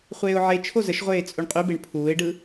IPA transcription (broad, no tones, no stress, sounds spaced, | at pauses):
χʷ eː ʊ̯ ʕ e t͡ʃʰ o z ə ʃ ʁʷ eː t͡sʼ u ɳ qʼ y b e ɳ pʰ uː ɪ̯ ɖ ɯ